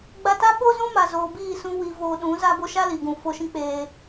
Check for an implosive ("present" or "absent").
present